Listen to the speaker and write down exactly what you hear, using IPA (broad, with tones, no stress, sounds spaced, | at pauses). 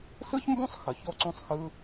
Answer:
s ɯ˦ ç m b õ˦ sˤ x ə˨ ç o˦ ǀ õ˦ sˤ x ɯ˦